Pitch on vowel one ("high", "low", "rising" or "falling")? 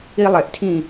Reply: high